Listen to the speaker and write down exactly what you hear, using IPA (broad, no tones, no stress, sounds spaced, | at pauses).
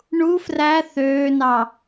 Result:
ɳ u f r æ θ øː n ɑ